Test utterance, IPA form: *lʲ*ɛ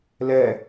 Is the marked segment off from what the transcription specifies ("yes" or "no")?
yes